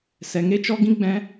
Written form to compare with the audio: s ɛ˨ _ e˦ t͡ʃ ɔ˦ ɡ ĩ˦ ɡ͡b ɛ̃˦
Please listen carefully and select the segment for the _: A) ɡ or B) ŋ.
B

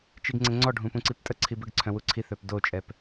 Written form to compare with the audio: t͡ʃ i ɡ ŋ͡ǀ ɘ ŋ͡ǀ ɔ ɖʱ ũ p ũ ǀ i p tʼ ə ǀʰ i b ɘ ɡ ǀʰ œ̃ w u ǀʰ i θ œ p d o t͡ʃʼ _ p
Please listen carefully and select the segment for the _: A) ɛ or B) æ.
A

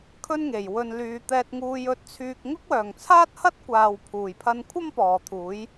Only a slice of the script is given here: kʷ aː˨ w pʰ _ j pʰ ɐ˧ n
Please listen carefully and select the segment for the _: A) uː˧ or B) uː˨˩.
B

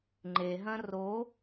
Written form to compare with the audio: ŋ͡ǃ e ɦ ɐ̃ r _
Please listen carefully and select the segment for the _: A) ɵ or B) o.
B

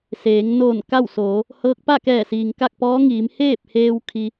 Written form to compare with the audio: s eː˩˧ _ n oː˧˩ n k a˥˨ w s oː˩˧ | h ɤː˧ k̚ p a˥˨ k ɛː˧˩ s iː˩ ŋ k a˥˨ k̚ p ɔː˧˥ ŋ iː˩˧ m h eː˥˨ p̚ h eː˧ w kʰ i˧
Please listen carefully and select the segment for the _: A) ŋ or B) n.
A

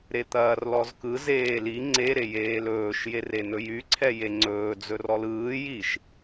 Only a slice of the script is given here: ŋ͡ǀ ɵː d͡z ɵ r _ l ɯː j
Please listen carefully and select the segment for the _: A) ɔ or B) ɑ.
A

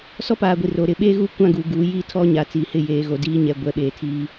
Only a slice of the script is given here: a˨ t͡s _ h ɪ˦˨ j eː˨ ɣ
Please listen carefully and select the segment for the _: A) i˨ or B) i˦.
A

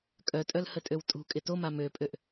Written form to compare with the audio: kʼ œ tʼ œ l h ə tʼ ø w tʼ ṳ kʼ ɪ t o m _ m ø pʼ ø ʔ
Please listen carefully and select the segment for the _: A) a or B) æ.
A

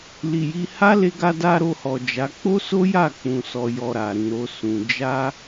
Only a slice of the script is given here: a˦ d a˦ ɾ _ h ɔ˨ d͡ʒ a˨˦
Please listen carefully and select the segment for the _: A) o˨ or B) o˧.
B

